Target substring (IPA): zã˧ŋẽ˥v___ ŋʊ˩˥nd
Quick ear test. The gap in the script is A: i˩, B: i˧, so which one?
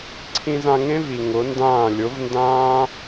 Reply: A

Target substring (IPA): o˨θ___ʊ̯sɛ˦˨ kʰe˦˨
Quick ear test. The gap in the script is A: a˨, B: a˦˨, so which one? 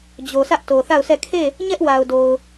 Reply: B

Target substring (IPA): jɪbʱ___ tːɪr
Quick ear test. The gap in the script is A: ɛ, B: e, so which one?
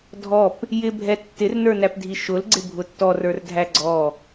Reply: A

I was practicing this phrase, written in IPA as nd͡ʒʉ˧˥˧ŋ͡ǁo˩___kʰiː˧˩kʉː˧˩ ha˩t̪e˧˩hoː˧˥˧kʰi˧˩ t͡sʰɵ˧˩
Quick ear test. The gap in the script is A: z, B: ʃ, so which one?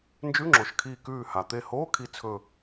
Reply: B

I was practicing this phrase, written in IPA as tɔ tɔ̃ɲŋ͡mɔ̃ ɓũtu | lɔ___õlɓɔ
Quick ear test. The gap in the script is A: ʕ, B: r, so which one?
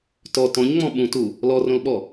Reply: B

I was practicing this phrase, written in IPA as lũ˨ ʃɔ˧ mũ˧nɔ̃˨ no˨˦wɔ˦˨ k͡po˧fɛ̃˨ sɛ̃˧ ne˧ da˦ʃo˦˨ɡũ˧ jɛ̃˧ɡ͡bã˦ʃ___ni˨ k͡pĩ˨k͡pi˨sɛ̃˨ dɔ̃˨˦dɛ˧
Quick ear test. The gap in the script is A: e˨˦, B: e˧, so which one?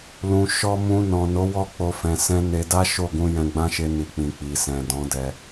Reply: B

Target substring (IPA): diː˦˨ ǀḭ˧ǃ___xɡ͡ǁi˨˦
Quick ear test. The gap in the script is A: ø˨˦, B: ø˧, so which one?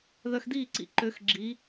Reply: A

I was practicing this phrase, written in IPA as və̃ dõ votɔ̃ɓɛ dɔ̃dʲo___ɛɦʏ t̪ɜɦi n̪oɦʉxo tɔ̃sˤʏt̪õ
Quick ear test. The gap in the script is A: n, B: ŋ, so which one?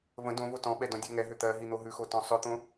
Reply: B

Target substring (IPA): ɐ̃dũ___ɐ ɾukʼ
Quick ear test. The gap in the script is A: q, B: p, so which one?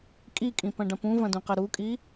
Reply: A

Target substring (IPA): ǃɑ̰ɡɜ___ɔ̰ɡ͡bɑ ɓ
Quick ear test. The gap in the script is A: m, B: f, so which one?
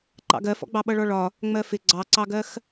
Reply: B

